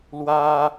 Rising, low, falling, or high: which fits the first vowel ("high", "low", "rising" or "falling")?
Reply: high